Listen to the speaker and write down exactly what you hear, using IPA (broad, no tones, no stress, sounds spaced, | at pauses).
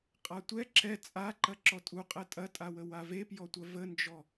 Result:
qʼ a tʷ ɛ ǁ ɛ t͡sʼ a ǃ ɐ ǁ ɔ tʼ u qʼ ɛ tʼ ɐ tʼ a w ə w a v e p j ɔ tʷ ɐ v ə n d͡ʒ ɔ